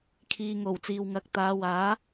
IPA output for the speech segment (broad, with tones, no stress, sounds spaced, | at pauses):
kʰ iː˨ ŋ o˨˩ w t͡s iː˨ w ŋ ɐ˨˥ k̚ t̪ aː˨˧ w aː˨˥